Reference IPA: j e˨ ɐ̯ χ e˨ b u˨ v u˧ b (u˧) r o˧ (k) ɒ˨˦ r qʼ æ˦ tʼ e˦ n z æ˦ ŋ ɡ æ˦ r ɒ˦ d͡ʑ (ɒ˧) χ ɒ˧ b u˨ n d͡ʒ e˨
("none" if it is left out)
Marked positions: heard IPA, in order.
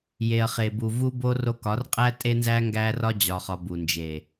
o˧, k, ɒ˧

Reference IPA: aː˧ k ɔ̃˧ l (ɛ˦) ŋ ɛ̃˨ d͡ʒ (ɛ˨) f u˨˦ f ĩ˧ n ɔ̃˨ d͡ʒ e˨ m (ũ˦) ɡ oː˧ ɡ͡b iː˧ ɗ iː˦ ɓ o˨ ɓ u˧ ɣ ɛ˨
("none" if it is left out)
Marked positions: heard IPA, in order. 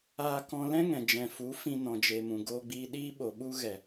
ɛ̃˦, ɛ̃˨, ũ˨

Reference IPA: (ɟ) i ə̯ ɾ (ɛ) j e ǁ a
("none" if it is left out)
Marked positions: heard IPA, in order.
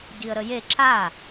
ɟ, ə

